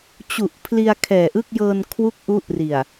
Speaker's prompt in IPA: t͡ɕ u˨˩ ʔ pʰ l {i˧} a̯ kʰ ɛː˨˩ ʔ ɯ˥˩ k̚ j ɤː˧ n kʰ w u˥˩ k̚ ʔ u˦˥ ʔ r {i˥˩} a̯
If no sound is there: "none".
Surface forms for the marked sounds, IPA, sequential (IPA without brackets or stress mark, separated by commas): i˧, i˨˩